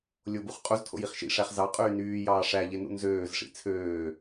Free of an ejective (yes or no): no